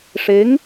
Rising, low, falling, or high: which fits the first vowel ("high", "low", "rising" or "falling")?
rising